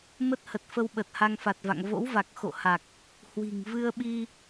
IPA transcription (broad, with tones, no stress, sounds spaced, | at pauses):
m ə˦˥ t̚ h ə˨˩ t̚ f ə˧ w ɓ ə˨˩ t̚ h a˧ ŋ f a˨˩ t̚ v a̰˧˨ ŋ v o̰˧˥ w v a˨˩ k̚ x o̰˧˨ h a˨˩ k̚ | h w i̤˨˩ ŋ v ɨ˧ ə̯ ɓ i˧